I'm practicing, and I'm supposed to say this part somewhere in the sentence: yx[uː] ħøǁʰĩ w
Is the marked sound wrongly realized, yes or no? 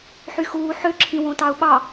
no